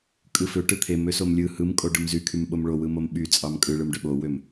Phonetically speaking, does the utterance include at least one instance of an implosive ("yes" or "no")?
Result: yes